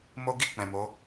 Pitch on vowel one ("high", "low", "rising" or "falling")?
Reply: high